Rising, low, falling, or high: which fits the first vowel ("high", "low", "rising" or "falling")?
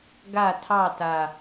falling